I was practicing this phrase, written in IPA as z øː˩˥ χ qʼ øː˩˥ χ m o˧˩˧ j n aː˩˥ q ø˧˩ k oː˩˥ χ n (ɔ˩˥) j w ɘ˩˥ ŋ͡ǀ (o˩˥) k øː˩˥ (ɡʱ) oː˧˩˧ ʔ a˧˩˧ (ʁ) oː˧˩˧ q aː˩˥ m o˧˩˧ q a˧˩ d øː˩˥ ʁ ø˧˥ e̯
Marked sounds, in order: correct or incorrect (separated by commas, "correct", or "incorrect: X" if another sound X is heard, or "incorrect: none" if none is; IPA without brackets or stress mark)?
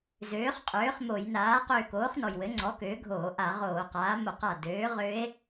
incorrect: ɔ˩, incorrect: ɔ˩˥, correct, correct